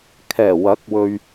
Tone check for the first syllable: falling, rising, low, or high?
low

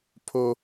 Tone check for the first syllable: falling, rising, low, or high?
high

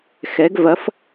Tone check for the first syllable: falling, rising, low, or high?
rising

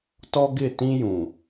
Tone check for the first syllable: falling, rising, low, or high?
high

